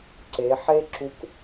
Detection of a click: present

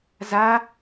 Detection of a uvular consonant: absent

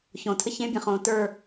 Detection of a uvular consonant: present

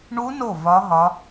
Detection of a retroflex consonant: present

